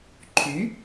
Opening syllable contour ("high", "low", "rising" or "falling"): rising